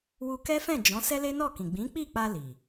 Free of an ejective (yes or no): yes